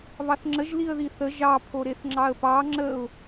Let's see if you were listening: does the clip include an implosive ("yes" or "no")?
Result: no